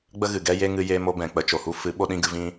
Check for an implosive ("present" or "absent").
present